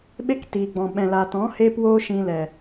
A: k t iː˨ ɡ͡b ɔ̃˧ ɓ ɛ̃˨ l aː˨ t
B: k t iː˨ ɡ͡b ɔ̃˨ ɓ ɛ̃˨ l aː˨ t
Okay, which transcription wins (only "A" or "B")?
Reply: B